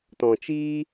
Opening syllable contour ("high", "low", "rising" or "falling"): low